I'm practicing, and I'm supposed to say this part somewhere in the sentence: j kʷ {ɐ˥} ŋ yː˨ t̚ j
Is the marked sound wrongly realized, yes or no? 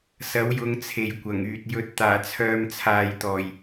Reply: yes